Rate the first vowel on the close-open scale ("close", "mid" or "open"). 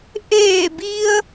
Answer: mid